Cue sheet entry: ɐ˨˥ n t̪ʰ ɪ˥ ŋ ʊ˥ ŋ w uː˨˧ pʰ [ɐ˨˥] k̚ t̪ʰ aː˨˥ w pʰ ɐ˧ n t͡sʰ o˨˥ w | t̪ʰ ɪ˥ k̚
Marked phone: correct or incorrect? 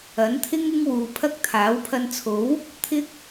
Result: incorrect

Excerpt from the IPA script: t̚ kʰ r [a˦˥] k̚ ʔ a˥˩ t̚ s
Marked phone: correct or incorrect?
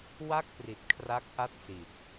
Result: correct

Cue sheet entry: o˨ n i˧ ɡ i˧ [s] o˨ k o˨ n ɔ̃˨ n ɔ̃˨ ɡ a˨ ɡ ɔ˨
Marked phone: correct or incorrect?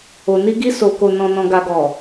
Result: correct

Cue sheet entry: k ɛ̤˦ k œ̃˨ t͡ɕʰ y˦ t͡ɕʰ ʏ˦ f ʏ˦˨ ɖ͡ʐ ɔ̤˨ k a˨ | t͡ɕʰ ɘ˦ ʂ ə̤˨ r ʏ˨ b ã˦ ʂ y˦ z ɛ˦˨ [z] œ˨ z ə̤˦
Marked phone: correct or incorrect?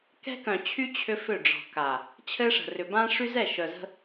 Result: incorrect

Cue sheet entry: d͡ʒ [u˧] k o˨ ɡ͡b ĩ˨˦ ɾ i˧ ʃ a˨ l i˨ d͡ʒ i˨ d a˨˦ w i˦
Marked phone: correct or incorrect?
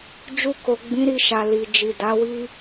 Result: correct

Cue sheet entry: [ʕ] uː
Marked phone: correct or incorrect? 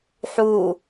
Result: incorrect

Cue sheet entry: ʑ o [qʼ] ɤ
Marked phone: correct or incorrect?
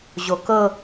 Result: incorrect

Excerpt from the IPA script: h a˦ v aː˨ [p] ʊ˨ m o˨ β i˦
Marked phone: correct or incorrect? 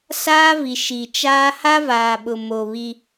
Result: incorrect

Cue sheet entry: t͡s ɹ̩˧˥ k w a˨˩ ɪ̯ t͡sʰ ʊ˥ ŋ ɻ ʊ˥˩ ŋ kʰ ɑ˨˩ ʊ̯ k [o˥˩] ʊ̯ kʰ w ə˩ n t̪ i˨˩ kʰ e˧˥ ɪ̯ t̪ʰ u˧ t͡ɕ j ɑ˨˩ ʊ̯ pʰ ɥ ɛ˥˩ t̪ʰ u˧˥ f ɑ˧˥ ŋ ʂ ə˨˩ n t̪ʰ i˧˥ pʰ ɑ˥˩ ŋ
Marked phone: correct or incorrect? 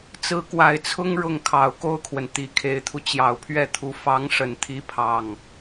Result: correct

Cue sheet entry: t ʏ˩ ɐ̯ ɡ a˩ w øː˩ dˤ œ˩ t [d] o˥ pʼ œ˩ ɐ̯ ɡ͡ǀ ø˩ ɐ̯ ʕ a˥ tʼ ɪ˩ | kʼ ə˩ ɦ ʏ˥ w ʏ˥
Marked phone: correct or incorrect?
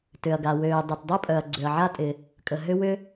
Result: incorrect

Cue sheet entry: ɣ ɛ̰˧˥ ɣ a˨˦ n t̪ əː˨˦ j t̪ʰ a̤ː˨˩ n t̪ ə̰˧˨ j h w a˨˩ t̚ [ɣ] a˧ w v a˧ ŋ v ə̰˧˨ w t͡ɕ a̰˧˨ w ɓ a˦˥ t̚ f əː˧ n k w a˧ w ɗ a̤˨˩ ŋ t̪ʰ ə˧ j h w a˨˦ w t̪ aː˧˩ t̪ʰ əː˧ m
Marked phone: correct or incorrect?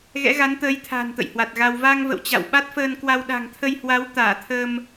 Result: correct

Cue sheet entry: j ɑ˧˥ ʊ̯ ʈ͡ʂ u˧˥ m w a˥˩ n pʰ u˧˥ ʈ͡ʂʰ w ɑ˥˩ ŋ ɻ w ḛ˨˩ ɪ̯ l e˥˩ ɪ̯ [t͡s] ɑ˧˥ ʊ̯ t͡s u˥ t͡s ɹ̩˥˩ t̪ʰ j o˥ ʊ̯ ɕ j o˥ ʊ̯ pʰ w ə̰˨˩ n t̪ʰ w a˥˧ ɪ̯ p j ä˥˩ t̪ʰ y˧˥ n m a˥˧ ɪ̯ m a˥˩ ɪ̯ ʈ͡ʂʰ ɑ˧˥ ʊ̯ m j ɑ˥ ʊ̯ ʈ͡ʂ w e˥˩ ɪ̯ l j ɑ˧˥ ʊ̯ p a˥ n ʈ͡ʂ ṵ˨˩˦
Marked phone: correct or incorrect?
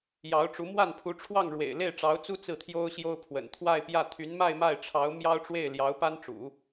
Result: incorrect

